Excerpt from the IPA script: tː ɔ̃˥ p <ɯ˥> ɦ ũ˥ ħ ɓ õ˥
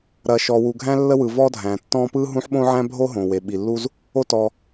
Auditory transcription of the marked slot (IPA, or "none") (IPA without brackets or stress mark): ɯ˥